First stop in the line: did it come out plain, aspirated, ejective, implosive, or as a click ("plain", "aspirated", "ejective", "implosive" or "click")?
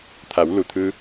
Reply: aspirated